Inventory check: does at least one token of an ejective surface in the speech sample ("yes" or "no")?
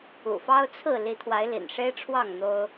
no